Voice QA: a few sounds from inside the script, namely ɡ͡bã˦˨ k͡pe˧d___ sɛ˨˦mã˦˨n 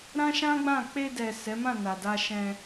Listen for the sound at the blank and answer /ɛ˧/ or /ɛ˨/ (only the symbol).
ɛ˨